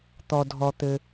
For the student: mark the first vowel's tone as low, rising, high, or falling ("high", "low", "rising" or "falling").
low